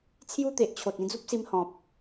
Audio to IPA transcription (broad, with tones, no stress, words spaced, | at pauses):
t͡sʰju˦t̪e˨ʔt͡ɕʰo˨t̚ ĩ˥˧d͡zu˦p̚si˧mhɔ̃˨p̚